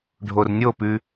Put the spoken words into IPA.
ɖʱ o r nʲ o p ʉ

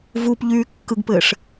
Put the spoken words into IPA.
v u p ʎ yː kː ɯ ɡ p ɘː ʂ

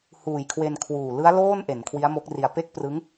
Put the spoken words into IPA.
h uː˨˩ j kʰ w e˧ n kʰ w uː˨˩ l ɯ˦˥ a̯ l oː˥˩ n ʔ e˩˦ n kʰ w i˦˥ a̯ m o˦˥ k̚ r i˧ a̯ p e˥˩ k̚ p r ɯ˦˥ ŋ

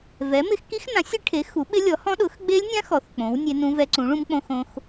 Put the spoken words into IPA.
v ɛ˨˥ m ɪ˦˥ x k i˦˥ x n ã˨˥ sʲ e˦˥ ʈʰ e˨˥ x u˨˥ ɓ ɪ˦˥ lʲ ɔ˨˥ h ɔ̃˦˥ ɗ ʊ˨˥ x ɡ͡b e˦˥ lʲ nʲ ã˦˥ x ɔ˨˥ θ k͡p õ˨˥ w nʲ e˦˥ n ũ˦˥ v ɛ˦˥ ǀ ũ˨˥ ɭ ũ˦˥ m k͡p õ˦˥ x õ˦˥ x

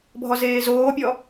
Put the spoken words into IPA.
bʱ ɔ z eː z oː pʲ ɔ

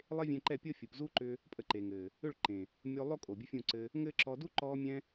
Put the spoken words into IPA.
lˠ e˦ vʲ ɛ̃˧ ǃ ɛ˦˨ pʲ ɤ˦ fʲ u˨ p z u˦ ǃ ʏ˧ | pʼ ə˧ ǃ e˨ ŋ ɘː˨ | ʏ˦˨ ɭ ǃ ẽ˨ | mʲ o˧ lˠ o˦ kʼ o˨ bʲ ə˦ fʲ ũ˦˨ ǀ ɘ˧ | ŋ ɘː˦ ǁ ɔ˧ d u˦ ǃ ɔː˧ mʲ ɛ̃˧

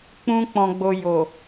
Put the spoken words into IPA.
k͡p ũ˦ k͡p ɔ̃˧ ɡ͡b o˧ j o˨

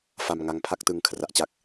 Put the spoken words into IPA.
f a˧ m ŋ a˧ ŋ pʰ a˥˩ k̚ t ɯ˧ ŋ kʰ r a˦˥ ʔ t͡ɕ a˥˩ k̚

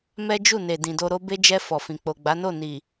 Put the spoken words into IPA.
m ɛ˦ d͡ʒ u˦˨ n e˨ d ĩ˨ d o˧ ɾ o˦ b e˦ d͡ʒ ɛ˧ f ɔ˨ f ĩ˨ k͡p o˨ ɡ͡b a˨˦ n o˦˨ n i˨

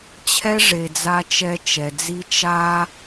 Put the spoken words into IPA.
t͡ɕʰ ɛ˥ ʐ e˩ d͡z a˧ t͡ʃ ɛ˧ t͡ʃ ɛ˩ d͡z i˧ t͡ʃ a˥

